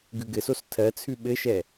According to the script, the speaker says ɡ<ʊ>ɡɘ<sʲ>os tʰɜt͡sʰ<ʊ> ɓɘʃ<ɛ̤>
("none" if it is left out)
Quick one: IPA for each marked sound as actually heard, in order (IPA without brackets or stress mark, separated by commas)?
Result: ʉ, s, ʉ, ɛ